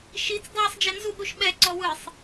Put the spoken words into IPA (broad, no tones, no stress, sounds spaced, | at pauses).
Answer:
ʃ i t͡s dˤ ɯː sˤ d͡ʒ e n z u ɠ u ʃ ɓ ɛ ǀ ɔ w ɯ sˤ